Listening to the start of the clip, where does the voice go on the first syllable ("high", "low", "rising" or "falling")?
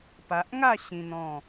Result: low